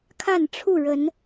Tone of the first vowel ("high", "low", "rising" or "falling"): falling